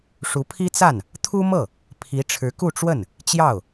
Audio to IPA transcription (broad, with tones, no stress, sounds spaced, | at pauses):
ʂ u˧˥ pʰ i˥ t͡s a˥˩ n | t̪ʰ u˥ m ɤ˥˩ | pʰ i˧˥ ʈ͡ʂʰ ɻ̩˧˥ k u˥˧ ʈ͡ʂ w ə˥˩ n | t͡ɕ j ɑ˥˩ ʊ̯